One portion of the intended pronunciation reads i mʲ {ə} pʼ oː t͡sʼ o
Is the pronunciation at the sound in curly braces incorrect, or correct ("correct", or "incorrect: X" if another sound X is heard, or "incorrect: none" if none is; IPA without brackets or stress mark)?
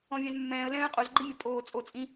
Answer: correct